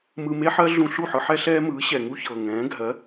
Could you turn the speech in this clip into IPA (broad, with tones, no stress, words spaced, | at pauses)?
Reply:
mɯ˧me˥ħɜ˥ ɮũ˧ɬu˥˩ħɯ˧ ħɛ˥ɬɛː˥mɯː˩˥ ɕɛ˩ŋu˥çɤː˩ ŋɛ̃ː˩˥ɡʱɜ˩˥